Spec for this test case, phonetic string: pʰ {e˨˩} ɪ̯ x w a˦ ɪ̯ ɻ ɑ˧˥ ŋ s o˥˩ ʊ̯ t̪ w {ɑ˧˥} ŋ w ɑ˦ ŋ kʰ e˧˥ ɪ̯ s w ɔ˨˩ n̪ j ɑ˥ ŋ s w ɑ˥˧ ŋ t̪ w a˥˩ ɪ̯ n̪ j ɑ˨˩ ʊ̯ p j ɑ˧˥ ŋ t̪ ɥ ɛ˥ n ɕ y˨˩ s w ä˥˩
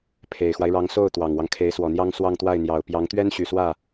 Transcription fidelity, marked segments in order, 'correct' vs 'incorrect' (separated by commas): correct, incorrect